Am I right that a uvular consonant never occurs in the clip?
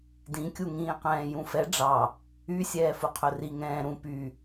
no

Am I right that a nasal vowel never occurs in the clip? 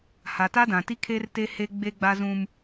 no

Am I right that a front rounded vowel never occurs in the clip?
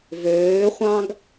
no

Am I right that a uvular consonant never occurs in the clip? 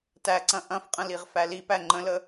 no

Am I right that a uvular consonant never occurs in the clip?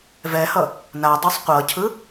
no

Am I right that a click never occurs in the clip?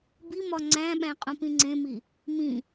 no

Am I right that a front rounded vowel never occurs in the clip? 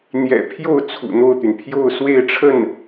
no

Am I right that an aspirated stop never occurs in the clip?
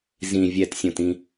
yes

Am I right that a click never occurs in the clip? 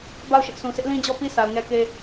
yes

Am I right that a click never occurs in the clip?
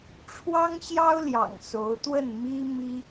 yes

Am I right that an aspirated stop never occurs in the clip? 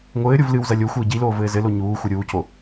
yes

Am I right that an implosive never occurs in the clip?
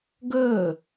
yes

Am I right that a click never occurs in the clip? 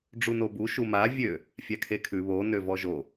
yes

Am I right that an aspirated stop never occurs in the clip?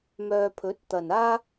no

